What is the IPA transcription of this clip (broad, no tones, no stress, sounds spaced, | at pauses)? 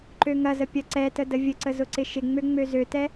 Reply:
ǃ ø ŋ ɐ z ə pʲ ɐ ǀ ɛ t ə d ə vʲ ə ǀ ə z ʊ ǀ ɪ ʃ ɪ ŋ͡m ø ŋ͡m ø z ø t ɛ